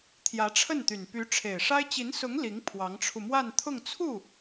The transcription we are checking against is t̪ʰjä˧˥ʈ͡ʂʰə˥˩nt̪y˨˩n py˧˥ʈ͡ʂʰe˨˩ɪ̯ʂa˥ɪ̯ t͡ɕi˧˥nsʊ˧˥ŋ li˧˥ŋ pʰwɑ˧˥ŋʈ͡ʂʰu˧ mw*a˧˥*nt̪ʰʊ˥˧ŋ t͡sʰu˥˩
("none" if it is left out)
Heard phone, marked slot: a˥˧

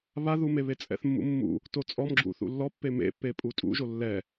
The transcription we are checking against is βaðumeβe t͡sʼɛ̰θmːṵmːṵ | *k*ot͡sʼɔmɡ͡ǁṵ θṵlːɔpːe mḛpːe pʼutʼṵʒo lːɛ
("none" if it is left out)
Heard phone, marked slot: t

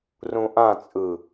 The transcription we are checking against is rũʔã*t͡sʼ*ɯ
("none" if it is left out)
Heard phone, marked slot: t͡sʼ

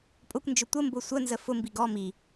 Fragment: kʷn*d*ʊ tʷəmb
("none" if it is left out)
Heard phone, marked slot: d͡ʒ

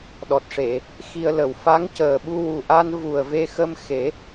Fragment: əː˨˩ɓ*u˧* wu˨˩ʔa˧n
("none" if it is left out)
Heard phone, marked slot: u˧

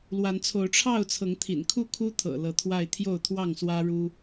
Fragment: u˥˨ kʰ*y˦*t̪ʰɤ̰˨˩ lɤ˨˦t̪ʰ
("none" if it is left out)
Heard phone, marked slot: u˦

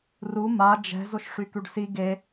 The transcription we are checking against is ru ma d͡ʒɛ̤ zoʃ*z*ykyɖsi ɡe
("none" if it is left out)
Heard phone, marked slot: ʂ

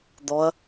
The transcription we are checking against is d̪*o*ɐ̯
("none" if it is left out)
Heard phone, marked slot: ɔ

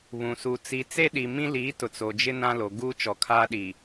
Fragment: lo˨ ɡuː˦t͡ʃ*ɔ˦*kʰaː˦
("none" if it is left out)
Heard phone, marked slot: ɔ˨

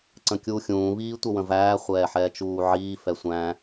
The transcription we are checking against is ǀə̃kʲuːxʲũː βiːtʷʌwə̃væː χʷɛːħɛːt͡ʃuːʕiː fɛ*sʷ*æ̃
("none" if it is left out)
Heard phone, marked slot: sʷ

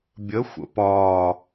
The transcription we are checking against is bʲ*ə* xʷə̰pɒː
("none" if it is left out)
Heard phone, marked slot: ə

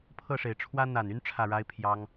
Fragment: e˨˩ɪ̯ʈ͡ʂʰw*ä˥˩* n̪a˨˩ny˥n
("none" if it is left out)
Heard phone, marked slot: ä˥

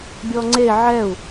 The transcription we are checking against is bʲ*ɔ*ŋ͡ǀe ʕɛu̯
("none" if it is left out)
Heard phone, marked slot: ɔ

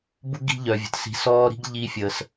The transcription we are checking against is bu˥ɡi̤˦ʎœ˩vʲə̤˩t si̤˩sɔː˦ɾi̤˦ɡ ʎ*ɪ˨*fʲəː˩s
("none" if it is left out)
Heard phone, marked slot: i˨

